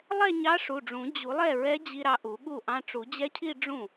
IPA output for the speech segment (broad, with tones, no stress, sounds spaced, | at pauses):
lˠ ɛ˥˧ ɲ ɑ˧˥ ʂ u˩˧˩ ɖ͡ʐ ũ˨˩˦ d͡ʑ u˨˩˦ lˠ ɛ˥˩ ɹ ɛ˧˥ d͡ʑ i˧ ɾ ɑ˧ ʔ u˨˩˦ ɠ u˥˩ ʔ ɑ̃˧ ʈ͡ʂ u˨˩˦ d͡ʑ ɛ˧˥ cʰ i˥˧ ɖ͡ʐ ũ˥˩